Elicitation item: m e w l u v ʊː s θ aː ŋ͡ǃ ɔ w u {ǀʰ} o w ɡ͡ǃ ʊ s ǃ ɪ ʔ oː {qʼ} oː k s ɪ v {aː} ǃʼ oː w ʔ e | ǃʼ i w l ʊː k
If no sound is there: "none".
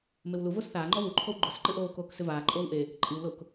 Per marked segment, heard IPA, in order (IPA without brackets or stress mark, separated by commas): ǃʰ, k, aː